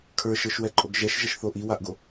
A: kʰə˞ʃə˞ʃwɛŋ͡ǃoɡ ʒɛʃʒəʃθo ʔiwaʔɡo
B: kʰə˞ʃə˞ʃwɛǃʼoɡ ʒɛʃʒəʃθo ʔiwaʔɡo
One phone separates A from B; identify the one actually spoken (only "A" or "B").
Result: B